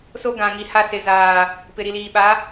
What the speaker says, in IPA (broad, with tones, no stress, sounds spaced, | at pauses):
s o˦ ɡ ã˨ ŋ i˨ h a˦ s ɪ˨ z aː˨ | p ɪ˨ ɾ i˨ l iː˨ ɓ a˨˦